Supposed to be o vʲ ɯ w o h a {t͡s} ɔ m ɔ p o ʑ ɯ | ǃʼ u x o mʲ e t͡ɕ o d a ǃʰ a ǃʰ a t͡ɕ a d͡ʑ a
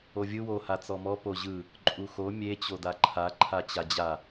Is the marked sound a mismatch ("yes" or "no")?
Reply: no